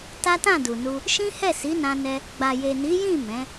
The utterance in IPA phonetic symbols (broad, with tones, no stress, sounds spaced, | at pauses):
t a˦ t ã˦˨ d u˨ n u˧ | ʃ ĩ˦ h ɛ˦˨ s i˨˦ n ã˧ n ɛ˧ | ɡ͡b a˨ j e˨ n i˨˦ j ĩ˦˨ m ɛ̃˨˦